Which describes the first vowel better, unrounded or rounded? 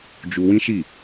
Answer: rounded